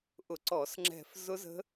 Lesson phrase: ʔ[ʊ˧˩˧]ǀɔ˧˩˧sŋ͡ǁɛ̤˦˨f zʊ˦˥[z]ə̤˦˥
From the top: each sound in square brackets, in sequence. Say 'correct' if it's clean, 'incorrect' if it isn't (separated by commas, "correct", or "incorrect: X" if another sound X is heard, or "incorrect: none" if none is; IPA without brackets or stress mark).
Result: correct, correct